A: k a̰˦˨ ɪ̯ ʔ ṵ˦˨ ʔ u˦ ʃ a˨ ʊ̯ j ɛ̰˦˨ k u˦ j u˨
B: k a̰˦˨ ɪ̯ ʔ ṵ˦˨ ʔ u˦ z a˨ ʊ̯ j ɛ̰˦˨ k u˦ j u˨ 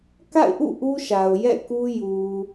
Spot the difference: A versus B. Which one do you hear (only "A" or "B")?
A